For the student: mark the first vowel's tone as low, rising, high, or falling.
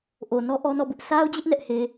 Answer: low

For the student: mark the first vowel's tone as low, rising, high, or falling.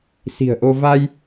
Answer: low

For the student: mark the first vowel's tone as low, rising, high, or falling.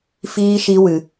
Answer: high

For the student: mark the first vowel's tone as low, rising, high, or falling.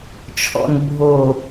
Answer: low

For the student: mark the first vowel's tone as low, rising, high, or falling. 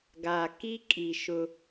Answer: low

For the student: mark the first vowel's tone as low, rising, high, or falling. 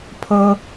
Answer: high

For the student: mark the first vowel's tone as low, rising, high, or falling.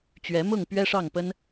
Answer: rising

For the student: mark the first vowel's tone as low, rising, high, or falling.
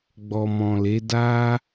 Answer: low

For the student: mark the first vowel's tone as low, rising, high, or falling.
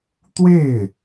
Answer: falling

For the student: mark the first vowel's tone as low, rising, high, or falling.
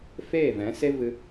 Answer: falling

